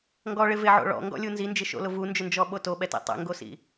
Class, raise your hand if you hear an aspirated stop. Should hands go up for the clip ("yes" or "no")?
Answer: no